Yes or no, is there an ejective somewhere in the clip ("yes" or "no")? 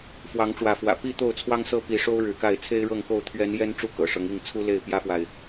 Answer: no